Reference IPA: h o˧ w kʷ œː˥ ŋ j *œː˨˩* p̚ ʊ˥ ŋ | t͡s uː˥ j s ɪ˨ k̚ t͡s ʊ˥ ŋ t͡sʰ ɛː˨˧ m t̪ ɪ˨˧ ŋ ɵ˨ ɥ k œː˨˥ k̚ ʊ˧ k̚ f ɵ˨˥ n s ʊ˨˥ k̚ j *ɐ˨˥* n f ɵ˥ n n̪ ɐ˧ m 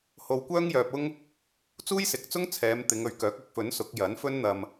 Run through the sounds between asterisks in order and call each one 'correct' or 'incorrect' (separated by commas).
incorrect, correct